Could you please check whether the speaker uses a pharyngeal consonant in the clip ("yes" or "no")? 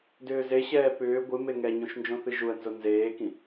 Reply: no